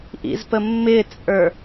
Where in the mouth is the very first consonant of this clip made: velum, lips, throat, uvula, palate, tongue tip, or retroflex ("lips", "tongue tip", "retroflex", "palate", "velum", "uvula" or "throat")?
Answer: throat